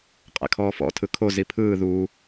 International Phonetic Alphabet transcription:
qʼ ɛ̰ kʰ ɔː f ɔ̰ tʰ ɯ kʰ o z i pʰ ɯː ð uː

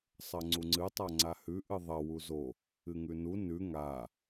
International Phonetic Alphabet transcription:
sˤ ɐ ŋ͡ǀ u ŋ͡ǀ ɨ tˤ a ŋ͡ǀ a h ʉ ʔ ɨ ðˤ ɐ w u z o | ɨ ŋ ʉ n u n ʉ ŋ a

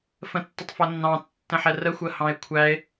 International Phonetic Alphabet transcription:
f ə̃ tː ə tˤ f ʌ nː ɑ̃ tː ə̃ ħ ɛ r ə xʷ ɜ h ɑ̃ e̯ kʷʰ æ e̯

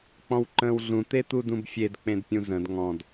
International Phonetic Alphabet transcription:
k͡p ɔ̃ w ǃ ə̃ː w ɮ ũ t̪ e t̪ u d ũ b fʲ e d k͡p ẽ d pʲ ũ z ə̃ d ŋ ɔ̃ d

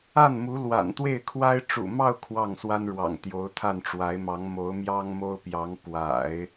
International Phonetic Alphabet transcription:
a˥˩ n m u˧˥ l w a̰˨˩ n t̪ w e˥˩ ɪ̯ kʰ w a˥ ɪ̯ ʈ͡ʂ ṵ˨˩ m ɑ˥˧ ʊ̯ kʰ w ɑ˥˩ ŋ s w a˥ n ɻ w ɑ̰˨˩ ŋ t̪ j o˧˥ ʊ̯ t̪ʰ a˥˩ n ʈ͡ʂ w a˧˥ ɪ̯ m ɑ˧˥ ŋ m o˧˥ ʊ̯ m j ɑ˥ ŋ m o˥ ʊ̯ p j ɑ˧˥ ŋ p w a̰˨˩˦ ɪ̯

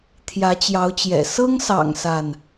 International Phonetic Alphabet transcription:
t̪ʰ j ä˨˦ t͡ɕ j ɑ˨˦ ʊ̯ t͡ɕ j ɛ̰˨˩ s ɤ˦ ŋ s ɑ̰˨˩ ŋ s a˥˨ n

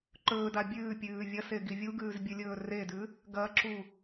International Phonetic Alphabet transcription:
ǃ ɵː d a bʲ ʉː pʲ ʉː vʲ ɐ s e ɡ i vʲ u ɡ ʉː z bʲ ɨ lʲ ɵː r e d ʉ | ɡ ɐ ǁ u

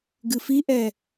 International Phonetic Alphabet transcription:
ɡ ɨ f i ʔ ɛ

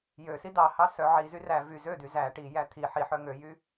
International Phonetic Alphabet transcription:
j ø s i d ɑ h ɑ s œ ʕ i z y r æ v y z ø d̪ y z æ ʈ i j æ t̪ʰ i ħ i ħ œ ŋ ø j y

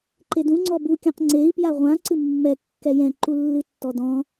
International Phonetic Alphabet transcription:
ǃ e d ũ ŋ͡ǀ ɔ b u kʲ ã q ŋ͡ǀ e i̯ p j a ʁʷ ã ǀ ɨ mː ɛ kː ɛ j ɛ̃ ǃ u lː ɨ tː ɔ d ɔ̃

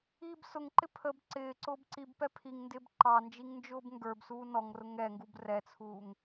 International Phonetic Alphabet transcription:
iː b s ʊ ŋ ǃ ɪ pʰ ə b ǀ ɪː ǀ ʊː b ǀ i b p ɛ pʰ i ŋ n d ɪː b ǃ ɑ n d͡ʒ i ŋ n d͡ʒ ʊː b ŋ ɡ ə˞ b s uː n ɔ ŋ r ʊ ŋ ɛ ŋ ɡ u b r ɛ t͡sʰ uː ŋ

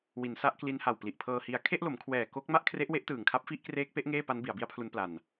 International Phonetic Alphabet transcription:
w i˩˦ n s a˦˥ ʔ k l i˦˥ n h a˨˩ w p l i˨˩ ʔ pʰ ɤː˧ h i˧ a̯ kʰ e˥˩ ʔ l o˩˦ m kʰ w ɛː˨˩ k o˦˥ k̚ m a˥˩ ʔ kʰ r e˦˥ ʔ w e˦˥ ʔ t ɯː˨˩ ŋ kʰ a˦˥ p̚ f i˦˥ ʔ k r eː˦˥ k̚ p e˦˥ ʔ ŋ eː˥˩ p a˦˥ n b i˩˦ a̯ b i˦˥ a̯ pʰ l u˦˥ n p l a˧ n

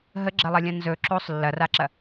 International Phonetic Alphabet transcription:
ɦ ə ɡ͡ǁ ɐ lˠ ɐ lʲ ɐ̃ n z ɵ ǁ o sˤ lː ɐ r a ǁ ɐ

